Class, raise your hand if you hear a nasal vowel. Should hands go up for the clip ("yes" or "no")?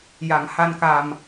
no